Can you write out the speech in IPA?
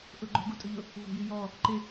ʔ ʊ ɡ͡ǃ o̤ ɡ ṳ tʼ ʊ ʎ ʊ | v o̤ j i j ɔ | ǃ ɪ

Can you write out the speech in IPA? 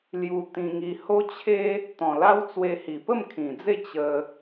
l j u˧ t̪ ĩ˧ ŋ i˧ h o˦ t͡ɕʰ e˦ | t̪ ɔ̃˨˩ l a˦ w t͡s w e˧ h i˨˩ p ə˥˧ m kʰ ĩ˨˩ d͡z e˥˧ t͡ɕ ə˦

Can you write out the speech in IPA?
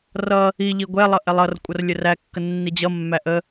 r ʌ | i ʎ i ɡʷ ɛ lˠ ʌ ʔ ɛ lˠ ʌ r kʷʼ ʌ r lʲ ə r æ kː ə nː i d͡ʑ ʌ mː æ ʔ ə

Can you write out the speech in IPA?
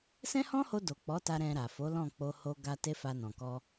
s ɛ̃˦ h ɔ̃˦ h o˧ d o˨ k͡p ɔ˨˦ t a˧ ɾ ɛ̃˧ ɾ a˨ f o˨˦ l ɔ̃˦˨ k͡p o˧ h o˧ ɡ a˧ t e˦ f a˧ n ɔ̃˨ k ɔ˧

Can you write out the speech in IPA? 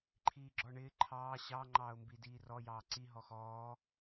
ǃʰ iː ɡ͡ǁ ɔ ɳ ɪː ǃʰ ɑː ɕ ɑ ŋ͡ǃ ɑː ʊ̯ m b i d iː r ɔ j ɑː ǀ i ɦ ɔ x ɔː

